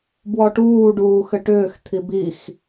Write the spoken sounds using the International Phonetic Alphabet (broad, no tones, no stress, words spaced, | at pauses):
bwɔʈuː ɖuːxɘʈʏːx t̪ʰibix